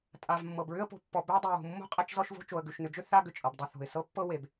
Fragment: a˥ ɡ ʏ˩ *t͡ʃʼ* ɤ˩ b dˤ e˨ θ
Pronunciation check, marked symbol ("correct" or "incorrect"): correct